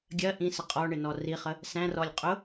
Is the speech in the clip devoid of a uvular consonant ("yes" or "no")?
no